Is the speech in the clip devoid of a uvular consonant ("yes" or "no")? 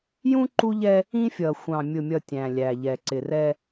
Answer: yes